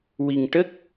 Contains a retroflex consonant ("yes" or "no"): yes